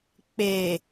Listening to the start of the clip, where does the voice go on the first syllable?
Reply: low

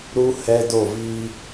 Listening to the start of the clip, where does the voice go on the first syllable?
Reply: high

